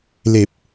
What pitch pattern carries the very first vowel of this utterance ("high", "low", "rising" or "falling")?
low